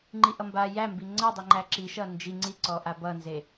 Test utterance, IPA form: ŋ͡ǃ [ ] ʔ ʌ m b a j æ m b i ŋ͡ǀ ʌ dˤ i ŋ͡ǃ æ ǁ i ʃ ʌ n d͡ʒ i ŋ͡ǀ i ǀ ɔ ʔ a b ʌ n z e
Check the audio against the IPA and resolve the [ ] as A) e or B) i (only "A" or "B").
B